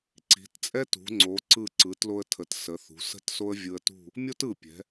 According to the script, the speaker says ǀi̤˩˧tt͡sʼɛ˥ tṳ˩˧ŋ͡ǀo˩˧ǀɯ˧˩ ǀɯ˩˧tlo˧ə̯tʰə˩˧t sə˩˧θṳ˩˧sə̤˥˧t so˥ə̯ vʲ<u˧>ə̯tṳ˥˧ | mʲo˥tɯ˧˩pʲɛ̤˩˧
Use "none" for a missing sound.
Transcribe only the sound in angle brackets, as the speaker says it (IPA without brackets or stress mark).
ɯ˧